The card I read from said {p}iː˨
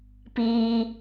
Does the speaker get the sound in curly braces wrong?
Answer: no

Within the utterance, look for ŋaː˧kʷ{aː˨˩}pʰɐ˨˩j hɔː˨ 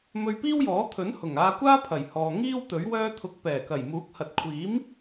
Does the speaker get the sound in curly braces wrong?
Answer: yes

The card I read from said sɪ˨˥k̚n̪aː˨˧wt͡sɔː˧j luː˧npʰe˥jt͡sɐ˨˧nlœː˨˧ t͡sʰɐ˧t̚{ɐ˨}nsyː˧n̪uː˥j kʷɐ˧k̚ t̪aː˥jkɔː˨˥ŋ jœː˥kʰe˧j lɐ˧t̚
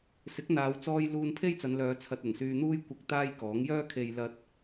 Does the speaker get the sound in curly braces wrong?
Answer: yes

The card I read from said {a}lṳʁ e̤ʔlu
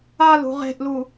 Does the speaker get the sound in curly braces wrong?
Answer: no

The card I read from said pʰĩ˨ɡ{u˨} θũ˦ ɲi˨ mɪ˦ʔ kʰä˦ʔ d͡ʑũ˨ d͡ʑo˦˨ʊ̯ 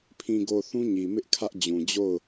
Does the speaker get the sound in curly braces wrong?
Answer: yes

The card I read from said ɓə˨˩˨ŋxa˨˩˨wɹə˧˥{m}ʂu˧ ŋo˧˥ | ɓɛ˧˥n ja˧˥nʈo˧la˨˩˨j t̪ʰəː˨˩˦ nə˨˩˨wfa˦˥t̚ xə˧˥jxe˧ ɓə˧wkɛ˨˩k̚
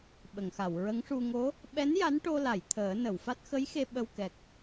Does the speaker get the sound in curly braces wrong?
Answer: yes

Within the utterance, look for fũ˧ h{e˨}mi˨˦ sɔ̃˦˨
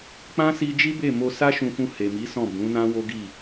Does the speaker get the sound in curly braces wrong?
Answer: no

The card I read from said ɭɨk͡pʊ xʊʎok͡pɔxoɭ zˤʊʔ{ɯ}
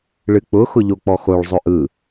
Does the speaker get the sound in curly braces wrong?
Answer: no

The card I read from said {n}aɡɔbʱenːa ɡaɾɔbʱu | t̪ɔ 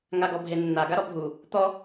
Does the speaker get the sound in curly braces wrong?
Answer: yes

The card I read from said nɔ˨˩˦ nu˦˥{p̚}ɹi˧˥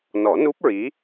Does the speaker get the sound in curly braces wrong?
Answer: no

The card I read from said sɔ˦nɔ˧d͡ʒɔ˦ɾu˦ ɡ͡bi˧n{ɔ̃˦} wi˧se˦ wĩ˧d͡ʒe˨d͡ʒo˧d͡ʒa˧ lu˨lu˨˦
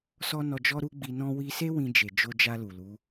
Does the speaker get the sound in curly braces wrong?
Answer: no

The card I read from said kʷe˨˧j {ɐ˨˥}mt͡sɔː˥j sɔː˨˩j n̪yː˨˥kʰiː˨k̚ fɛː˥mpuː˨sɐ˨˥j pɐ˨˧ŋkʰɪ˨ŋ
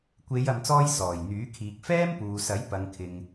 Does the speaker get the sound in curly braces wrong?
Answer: yes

